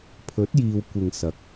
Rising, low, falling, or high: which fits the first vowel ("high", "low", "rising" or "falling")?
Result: rising